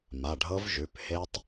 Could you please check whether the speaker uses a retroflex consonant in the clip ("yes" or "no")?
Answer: yes